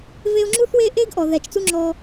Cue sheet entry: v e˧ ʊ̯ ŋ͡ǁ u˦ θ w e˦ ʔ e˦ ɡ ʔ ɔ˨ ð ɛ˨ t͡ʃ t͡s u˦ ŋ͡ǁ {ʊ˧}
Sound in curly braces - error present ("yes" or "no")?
yes